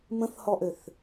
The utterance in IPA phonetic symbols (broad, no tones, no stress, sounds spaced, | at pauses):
m ə̃ θ h ɔ ʔ ø θ